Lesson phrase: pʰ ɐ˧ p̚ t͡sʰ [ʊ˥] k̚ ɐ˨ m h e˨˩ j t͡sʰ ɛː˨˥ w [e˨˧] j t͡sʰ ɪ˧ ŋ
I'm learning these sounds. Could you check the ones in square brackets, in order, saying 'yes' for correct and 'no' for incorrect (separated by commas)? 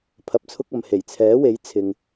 yes, no